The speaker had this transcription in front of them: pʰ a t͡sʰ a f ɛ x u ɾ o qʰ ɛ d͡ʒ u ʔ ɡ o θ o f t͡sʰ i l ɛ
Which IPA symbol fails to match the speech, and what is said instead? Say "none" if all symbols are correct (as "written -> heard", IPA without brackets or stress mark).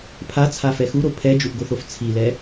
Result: qʰ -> pʰ